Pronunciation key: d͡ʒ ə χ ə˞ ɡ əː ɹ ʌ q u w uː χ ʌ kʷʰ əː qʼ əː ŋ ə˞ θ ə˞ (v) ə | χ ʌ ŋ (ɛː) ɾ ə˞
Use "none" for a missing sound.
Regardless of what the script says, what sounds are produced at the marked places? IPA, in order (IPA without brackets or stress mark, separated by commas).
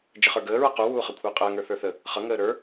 θ, əː